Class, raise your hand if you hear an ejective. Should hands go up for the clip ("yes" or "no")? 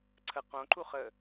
no